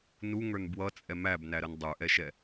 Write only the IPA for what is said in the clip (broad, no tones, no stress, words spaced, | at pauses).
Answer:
nuŋə˞n bwʌt͡sʼɛ mæbnæɾən dˤə˞ʔɛʃɛ